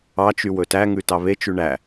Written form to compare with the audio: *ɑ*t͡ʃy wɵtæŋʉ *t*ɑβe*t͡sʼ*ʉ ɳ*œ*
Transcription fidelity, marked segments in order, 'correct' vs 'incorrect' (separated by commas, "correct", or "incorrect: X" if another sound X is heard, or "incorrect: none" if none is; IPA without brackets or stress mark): correct, correct, incorrect: t͡ʃ, incorrect: æ